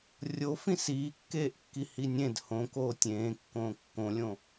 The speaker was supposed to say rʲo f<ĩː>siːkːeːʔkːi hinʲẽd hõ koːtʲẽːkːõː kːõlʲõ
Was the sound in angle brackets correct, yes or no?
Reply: no